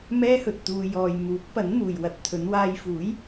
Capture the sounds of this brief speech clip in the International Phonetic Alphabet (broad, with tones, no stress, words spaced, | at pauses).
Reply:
mɛː˥hɵ˨t̚t̪uː˧ jɔː˨j muː˨˥k̚pɐ˨˥nn̪uː˨j wɐ˧t̚ t̪ʰɵ˨˧n waː˧jfuː˨˥j